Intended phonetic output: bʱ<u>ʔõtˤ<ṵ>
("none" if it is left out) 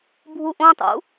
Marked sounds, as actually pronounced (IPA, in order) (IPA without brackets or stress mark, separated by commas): u, ṵ